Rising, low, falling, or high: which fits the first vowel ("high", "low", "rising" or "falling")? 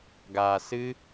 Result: low